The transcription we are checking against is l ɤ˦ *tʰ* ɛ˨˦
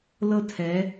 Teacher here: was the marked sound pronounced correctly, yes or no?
yes